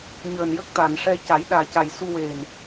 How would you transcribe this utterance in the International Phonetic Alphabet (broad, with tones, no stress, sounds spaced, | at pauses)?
ɲ əː˨˩ n j ə˦˥ k̚ t̪ a˨˩˨ n ʂ ɛ˧ c a˨˩˦ j ɗ aː˨˩ c a˨˩ j s u˧ w e˨˩ n